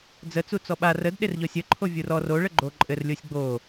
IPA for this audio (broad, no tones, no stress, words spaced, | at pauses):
d͡zət͡su t͡sɔɓar ədɗerʎɔsʲ ə ǃʰovʲurɔ roɭə ɡ͡ǃoǃʼɘr lʲosʲɡ͡bo